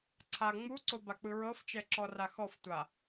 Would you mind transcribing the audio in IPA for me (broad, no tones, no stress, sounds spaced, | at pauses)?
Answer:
ǀʰ a ŋ͡m u ǀ o b a k͡p ɯ ɹ ɤ f t͡ʃ ɛ ǁ ɔ r a x ɔ f tʷ a